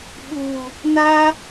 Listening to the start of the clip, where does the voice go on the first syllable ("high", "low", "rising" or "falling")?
low